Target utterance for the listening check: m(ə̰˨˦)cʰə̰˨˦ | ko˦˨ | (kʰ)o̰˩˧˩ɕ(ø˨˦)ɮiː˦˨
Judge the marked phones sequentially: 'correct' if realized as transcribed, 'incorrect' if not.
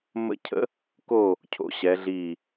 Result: correct, incorrect, incorrect

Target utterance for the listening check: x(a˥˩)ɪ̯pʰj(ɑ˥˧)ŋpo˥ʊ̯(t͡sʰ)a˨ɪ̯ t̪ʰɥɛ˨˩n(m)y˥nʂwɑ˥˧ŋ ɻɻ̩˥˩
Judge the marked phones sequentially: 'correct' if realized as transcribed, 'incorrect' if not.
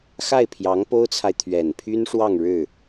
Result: correct, incorrect, correct, incorrect

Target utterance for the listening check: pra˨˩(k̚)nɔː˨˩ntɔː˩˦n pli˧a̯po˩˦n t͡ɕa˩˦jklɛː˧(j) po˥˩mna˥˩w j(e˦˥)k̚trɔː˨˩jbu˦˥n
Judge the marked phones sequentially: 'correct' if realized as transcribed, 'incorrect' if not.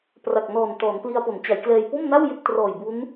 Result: correct, correct, incorrect

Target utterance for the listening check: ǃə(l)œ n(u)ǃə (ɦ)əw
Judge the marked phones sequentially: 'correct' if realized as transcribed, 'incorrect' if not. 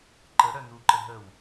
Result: incorrect, correct, correct

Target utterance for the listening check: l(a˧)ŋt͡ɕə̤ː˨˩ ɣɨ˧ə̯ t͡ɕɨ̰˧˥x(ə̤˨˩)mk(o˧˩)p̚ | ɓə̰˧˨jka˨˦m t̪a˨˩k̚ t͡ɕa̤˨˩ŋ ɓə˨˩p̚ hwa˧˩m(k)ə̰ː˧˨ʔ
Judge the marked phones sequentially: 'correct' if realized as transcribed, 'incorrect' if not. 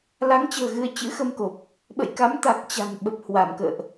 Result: incorrect, incorrect, incorrect, correct

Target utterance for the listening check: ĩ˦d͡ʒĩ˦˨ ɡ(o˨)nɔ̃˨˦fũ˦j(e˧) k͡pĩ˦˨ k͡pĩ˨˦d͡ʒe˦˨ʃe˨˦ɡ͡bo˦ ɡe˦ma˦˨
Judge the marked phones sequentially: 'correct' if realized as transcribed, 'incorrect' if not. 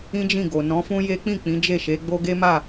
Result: correct, incorrect

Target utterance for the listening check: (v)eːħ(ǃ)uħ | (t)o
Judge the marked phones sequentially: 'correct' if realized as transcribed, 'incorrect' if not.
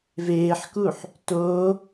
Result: correct, incorrect, correct

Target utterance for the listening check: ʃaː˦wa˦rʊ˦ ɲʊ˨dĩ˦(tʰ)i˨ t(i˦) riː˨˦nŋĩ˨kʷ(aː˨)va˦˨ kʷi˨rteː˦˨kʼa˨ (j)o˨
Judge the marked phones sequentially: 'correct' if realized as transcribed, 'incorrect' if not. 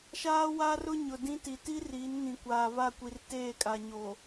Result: incorrect, correct, correct, incorrect

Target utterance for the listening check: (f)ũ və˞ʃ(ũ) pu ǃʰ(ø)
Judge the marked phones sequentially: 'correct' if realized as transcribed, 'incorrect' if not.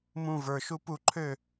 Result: incorrect, incorrect, correct

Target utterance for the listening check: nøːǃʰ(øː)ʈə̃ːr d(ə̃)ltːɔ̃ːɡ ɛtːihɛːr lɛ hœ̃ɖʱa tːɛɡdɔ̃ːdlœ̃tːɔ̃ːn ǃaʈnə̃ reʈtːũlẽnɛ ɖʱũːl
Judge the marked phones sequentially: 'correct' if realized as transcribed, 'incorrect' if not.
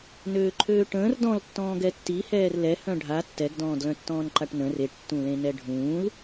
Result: correct, incorrect

